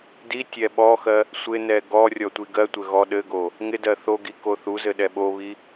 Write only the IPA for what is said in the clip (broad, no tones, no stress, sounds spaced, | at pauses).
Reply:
d i tʲ ɛ ɓ ɔ x ɜ | sʷ ɪ n ɛ ɡ ɔ rʲ ɔ tʷ i ɡ ɜ tʷ ɘ ɣ ɔ ɗ ɘ ɡ o | ŋ ɪ d ɜ θ o ɡ i k o θ u z ɘ ɗ ɛ ɓ o β i